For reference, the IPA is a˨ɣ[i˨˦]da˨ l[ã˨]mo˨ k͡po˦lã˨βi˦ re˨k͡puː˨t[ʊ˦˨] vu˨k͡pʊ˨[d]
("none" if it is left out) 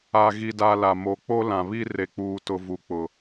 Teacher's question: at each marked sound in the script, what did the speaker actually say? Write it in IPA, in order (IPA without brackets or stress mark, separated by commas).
i˨, a˨, ʊ˨, none